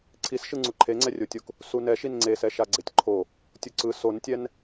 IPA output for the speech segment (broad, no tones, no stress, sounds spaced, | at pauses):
ǀʰ i s ʃ ɯ ŋ͡ǀ u ǃʰ e ŋ͡ǀ ɛ rʲ o tʲ o k | s u n ɛ ʃ i n ŋ͡ǀ e s ɛ ʃ a ɡ͡ǀ e tʲ ǃʰ o | tʲ u ǀ ɯ s o n tʲ ɛ n